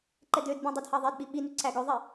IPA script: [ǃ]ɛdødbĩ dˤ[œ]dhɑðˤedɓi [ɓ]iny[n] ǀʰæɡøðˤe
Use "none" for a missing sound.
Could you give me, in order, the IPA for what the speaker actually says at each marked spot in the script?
ǃ, ɛ, ɓ, none

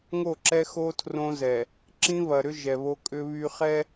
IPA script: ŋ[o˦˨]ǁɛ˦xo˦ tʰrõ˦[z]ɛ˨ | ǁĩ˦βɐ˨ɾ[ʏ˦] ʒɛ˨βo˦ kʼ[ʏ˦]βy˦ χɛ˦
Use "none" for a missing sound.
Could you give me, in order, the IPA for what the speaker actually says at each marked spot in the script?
o˦˨, z, ʏ˦, ʏ˦

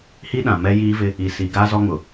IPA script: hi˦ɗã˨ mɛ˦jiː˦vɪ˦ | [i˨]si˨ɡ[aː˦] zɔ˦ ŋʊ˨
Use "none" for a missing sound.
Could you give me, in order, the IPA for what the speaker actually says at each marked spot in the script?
i˨, aː˦

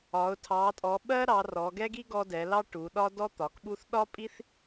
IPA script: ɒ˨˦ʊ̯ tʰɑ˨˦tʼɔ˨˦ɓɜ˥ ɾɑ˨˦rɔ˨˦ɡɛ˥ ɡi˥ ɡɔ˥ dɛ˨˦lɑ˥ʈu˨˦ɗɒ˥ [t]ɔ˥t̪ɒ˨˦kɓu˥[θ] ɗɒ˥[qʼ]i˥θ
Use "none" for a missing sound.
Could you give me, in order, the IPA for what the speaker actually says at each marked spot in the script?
d, θ, pʼ

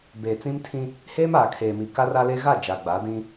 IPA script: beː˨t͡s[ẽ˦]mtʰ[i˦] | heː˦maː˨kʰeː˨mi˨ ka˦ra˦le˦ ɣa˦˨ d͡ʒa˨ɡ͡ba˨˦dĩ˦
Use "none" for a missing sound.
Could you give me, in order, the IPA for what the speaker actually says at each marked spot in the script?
ĩ˦, ĩ˦

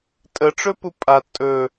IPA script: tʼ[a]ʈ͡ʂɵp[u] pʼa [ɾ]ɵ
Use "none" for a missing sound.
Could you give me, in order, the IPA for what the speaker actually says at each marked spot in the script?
ə, u, tʼ

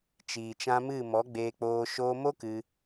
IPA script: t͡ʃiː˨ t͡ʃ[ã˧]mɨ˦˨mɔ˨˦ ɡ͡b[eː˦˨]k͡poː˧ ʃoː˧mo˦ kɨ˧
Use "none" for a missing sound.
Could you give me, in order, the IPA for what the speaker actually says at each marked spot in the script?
ã˧, eː˧

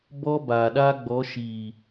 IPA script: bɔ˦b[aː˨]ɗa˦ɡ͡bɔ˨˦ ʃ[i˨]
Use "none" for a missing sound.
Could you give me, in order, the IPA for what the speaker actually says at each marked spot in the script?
aː˨, iː˨

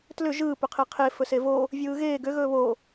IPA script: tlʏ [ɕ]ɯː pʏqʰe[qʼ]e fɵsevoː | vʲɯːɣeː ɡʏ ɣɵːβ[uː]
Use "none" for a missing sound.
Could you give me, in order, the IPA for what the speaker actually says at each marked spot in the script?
ʒ, qʰ, oː

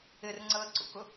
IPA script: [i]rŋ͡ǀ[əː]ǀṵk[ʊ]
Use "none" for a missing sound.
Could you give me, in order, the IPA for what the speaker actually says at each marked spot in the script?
ɪ, əː, ʊ

